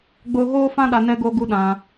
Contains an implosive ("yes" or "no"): yes